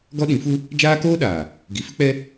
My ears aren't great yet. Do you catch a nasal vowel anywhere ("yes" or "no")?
yes